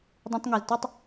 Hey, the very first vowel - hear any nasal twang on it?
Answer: yes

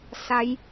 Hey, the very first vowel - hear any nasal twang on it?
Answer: no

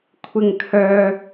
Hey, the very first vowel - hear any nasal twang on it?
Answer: no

